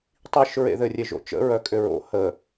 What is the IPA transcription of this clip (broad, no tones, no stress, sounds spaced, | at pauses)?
tˤ i ʃ ɹ ḛ ð ɘ rʲ e ʒ o̰ t͡ʃ ə̰ ɹ œ kʼ ʏ ɹ o̰ h ə